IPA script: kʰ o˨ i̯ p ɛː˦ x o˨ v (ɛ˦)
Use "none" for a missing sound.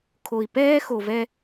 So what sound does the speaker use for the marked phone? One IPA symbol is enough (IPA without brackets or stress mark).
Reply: ɛ˦